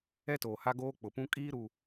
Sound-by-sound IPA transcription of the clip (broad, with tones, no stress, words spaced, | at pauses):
ɛ˦toː˨ha˦ɡoː˦ k͡pʊ˨pũ˦ kʼiː˦ɾu˨